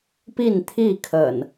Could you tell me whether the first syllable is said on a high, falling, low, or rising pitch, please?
falling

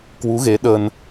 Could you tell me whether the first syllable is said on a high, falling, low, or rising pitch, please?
rising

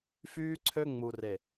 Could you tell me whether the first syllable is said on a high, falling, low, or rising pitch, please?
high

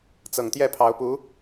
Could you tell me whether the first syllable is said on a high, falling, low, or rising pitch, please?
low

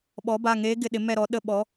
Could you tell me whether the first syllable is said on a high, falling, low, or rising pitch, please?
rising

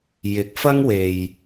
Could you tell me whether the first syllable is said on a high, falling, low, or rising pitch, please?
rising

